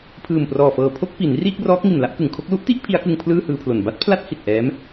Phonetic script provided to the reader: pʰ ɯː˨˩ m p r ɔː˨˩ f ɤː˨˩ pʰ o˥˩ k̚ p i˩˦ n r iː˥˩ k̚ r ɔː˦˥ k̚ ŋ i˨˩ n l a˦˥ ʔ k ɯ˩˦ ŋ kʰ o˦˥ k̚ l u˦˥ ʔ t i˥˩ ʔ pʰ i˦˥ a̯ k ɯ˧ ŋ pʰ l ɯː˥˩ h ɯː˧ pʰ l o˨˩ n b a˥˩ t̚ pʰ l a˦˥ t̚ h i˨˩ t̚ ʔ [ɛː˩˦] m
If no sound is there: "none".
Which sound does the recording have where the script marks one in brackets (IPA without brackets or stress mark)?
ɛː˦˥